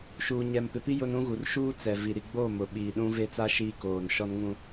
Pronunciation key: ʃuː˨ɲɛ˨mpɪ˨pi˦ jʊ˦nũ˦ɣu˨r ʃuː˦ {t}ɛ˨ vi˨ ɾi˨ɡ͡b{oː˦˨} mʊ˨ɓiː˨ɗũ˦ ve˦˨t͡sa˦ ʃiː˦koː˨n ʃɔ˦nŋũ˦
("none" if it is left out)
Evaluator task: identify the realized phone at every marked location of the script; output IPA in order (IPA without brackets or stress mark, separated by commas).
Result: t͡s, oː˦˨